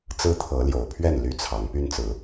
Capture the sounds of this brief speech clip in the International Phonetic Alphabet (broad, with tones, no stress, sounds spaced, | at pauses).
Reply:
t͡s ɹ̩˦ t̪ʰ ɤ˨˦ l j o˨˩ ʊ̯ pʰ ɥ ɛ˥˨ n l y˦ t͡sʰ ɑ˨˦ ŋ p y˦ n t͡s ɹ̩˨˦